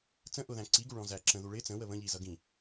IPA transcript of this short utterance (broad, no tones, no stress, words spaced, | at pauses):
t͡sə̃ ʔʊðæ̃ ǀiɡuɭɔ̃zæ ǁə̃ðu ɭɪ t͡sə̃wə βə̃ʎizʌ ɡĩ